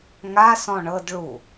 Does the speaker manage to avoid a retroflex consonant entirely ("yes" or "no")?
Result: no